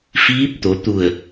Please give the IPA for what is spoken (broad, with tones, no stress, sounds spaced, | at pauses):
f iː˧˥ p̚ t̪ o˩˧ t̪ u˧˩ ə̯